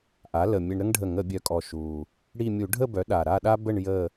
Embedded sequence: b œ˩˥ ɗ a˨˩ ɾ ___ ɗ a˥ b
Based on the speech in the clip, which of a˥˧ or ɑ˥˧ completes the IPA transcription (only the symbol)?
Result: a˥˧